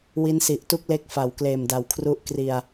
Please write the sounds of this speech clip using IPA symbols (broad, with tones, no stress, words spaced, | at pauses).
wi˦˥nsi˨˩ʔtu˥˩k̚ le˥˩k̚fa˨˩w kleː˨˩mda˨˩wkʰru˦˥ʔ kri˧a̯